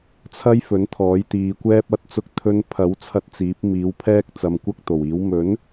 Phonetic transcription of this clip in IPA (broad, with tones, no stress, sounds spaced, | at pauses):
t͡sʰ ɐ˥ j f ɵ˨˥ n t̪ʰ ɔː˨˥ j t̪ iː˨˧ kʷ ɛː˥ p̚ ɐ˧ t̚ t͡s ʊ˧ k̚ t̪ʰ ɵ˧ n pʰ ɐ˨˥ w t͡sʰ ɐ˧ t̚ t͡s iː˨˥ p̚ m iː˨˥ w pʰ ɛː˥ k̚ t͡s ɐ˨˧ m kʷ ɐ˥ k̚ t̪ o˨˩ w iː˨˥ w m ɵ˨˥ n